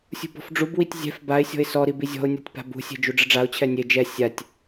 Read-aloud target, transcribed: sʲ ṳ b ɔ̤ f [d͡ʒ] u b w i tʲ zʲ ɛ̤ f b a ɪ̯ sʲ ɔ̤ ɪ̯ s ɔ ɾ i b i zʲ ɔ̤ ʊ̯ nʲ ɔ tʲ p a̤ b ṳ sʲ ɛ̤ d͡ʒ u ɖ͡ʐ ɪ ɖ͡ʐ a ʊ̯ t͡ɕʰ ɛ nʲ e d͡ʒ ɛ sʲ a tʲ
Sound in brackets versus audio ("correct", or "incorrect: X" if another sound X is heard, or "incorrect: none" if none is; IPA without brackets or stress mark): incorrect: ɖ͡ʐ